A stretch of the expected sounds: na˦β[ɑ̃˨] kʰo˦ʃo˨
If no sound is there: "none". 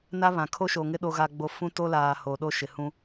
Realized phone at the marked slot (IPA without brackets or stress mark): ã˨